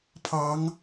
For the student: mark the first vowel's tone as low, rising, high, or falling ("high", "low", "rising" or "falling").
rising